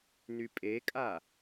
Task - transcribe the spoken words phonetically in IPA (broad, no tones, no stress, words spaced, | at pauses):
nypʼekʼa